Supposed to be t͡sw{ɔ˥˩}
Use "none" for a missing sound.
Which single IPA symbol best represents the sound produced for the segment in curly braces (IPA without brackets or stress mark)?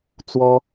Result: ɔ˥